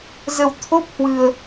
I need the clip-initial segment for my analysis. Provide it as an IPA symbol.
z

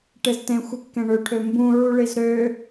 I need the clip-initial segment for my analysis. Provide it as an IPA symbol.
ʈ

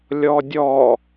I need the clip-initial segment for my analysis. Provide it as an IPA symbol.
lʲ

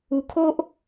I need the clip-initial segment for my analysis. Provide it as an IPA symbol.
u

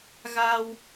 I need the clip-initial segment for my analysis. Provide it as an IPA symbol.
ɣ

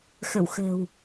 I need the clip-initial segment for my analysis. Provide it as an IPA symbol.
x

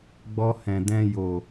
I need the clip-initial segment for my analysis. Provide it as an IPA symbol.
ɡ͡b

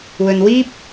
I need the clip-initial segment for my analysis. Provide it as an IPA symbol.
w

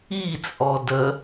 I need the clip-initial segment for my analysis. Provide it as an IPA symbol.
i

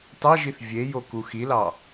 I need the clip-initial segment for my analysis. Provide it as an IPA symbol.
t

